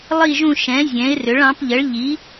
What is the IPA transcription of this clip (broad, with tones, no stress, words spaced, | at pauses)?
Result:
lˠi˦˨ʒũ˦˨ʃɛ̃˩˥ zʲɛ̃˩˥ɪ̯rʏ˩˥ɭɑ̃˩˥p ʎə˩˥ɭʎi˩˥